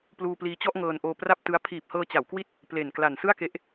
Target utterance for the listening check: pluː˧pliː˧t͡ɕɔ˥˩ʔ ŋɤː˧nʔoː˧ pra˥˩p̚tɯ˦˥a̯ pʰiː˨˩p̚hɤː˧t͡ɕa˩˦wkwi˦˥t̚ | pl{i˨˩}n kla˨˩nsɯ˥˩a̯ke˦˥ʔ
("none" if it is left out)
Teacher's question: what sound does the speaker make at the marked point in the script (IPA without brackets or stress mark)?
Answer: e˨˩